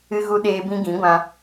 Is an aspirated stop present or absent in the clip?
absent